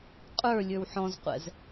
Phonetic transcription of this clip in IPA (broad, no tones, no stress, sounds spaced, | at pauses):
qʼ ə˞ lʲ ə˞ w ħ ɔ̃ z qʷ ɛ̰ z